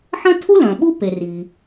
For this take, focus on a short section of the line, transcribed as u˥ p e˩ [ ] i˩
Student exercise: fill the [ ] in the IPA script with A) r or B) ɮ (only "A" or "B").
A